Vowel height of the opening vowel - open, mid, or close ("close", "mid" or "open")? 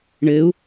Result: mid